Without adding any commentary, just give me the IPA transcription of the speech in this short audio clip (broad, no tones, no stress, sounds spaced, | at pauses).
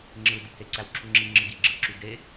ŋ͡ǁ ɯ d u h e ǀ æ w ǁʰ u ŋ͡ǁ i ŋ͡ǁ ɯ ɡ i ɡ͡ǁ ɯ ǁ y d e